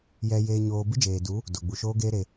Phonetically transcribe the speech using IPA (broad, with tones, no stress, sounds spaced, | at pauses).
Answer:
j ɛ˧ j eː˧ ɲ oː˧ b ɨ˦ d͡ʒ eː˨ d u˨˦ | d o˨ ɡ͡b u˨ ʃ oː˦ ɡ eː˦ ɾ e˧